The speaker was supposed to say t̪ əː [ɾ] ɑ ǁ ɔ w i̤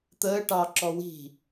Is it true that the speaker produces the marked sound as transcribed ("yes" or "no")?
no